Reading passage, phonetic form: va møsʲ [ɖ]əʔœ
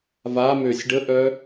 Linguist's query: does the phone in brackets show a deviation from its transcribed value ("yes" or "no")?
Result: no